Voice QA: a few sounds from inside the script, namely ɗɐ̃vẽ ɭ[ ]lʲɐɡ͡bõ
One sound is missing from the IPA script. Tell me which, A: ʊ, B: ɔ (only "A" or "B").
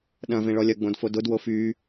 B